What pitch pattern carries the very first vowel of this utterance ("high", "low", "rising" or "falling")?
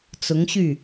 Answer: rising